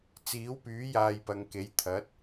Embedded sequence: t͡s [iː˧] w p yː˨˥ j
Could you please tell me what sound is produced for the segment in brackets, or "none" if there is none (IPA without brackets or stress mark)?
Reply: iː˨˥